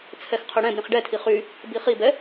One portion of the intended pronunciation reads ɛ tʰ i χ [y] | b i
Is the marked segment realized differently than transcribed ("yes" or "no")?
no